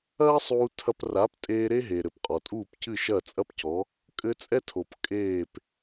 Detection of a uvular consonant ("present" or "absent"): present